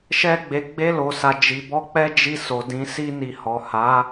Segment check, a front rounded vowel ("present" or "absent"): absent